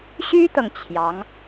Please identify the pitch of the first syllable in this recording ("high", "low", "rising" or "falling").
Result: high